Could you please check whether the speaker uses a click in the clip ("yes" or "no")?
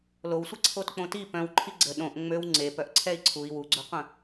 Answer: yes